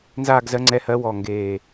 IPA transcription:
n z aː˥˧ ɡ z ɜ˨˦ ŋ͡ǀ ɛ˨˦ h ɜ˨˦ w ɔ˧˩ ŋ ɡ eː˧˩

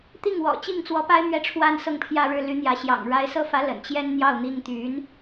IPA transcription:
t̪ i˥˩ ŋ w ɔ̰˨˩ t͡ɕ i˥˩ ŋ t͡s w ɔ˧˥ p a˥ ɪ̯ m ɥ ɛ˥˧ ʈ͡ʂʰ w a˥˧ n s ɤ˥˧ ŋ pʰ j ä˥˧ ɻ ɻ̩˥˩ l y˧˥ n̪ j ä˧˥ ɕ j ɑ̰˨˩ ŋ ɻ a˧˥ ɪ̯ s ɤ˥ f ä˧˥ l ə̰˨˩ n t͡ɕ j ɛ˥ n n̪ j ɑ˥˩ ʊ̯ n̪ i˥ ŋ t̪ y˧˥ n

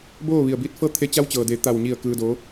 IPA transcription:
b oː˥˨ ʋ i˧˩ ə̯ b iː˧˥ t̚ f ɤː˥˨ t̪ʰ e˧ t͡ɕ a˧ w t͡ɕ ɤː˩ d e˩˧ t̪ a˧˩ w ɲ i˧˩ ə̯ k ɯː˧ d oː˧˥

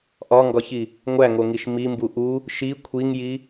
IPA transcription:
ʔ ɒ ŋ ɡ ɒ ç i | ŋʷ æ ŋ o ŋ i ʃ m i m b u ʔ u | ʃ i kʷʰ i ŋ j i

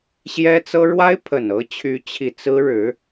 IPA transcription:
ɕ j ɛ˥ t͡s ɤ˥ ɻ w a˥ ɪ̯ pʰ ə˨˩ n ɤ˧˥ t͡ɕʰ y˧˥ t͡ɕʰ i˨˩ t͡s ɹ̩˥ ɻ ɻ̩˧˥

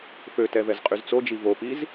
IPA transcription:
f ø t ɛ v ɛ z qʼ y z t͡s o d͡ʒ i v o p i z

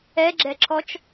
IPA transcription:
ɛ ɡ͡ǁ ɛ ǁʰ ɔ t͡ʃ

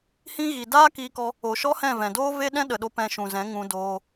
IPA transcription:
h ĩ˦ ɣ i˨ d aː˦ k iː˧ k ɔ˧ | o˨ ʃ ɔ˦ h ɛ̃˦˨ v ɛ̃˨ d oː˦ v e˦ ɗ ɛ̃˦ ɗ ə˨ ɗ o˧ p ɛ̃˧ ʃ ũ˨ z ɛ̃˨˦ ŋ ũ˧ d oː˧

